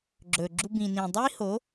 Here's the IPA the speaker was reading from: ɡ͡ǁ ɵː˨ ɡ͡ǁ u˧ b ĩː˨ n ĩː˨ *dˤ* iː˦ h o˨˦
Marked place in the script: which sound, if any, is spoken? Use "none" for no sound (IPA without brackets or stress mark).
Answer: dˤ